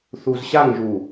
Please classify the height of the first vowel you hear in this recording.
high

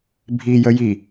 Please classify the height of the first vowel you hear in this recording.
high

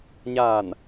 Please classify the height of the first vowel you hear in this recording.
low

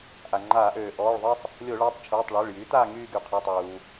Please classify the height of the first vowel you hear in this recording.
low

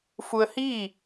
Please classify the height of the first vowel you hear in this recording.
high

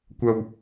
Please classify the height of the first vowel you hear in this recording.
low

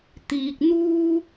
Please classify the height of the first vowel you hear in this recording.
high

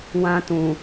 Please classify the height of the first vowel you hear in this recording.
low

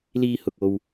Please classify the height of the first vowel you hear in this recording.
high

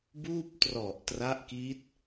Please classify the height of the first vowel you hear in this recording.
high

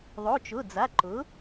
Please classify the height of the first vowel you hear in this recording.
mid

